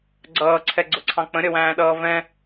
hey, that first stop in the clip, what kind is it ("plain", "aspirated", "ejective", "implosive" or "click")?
click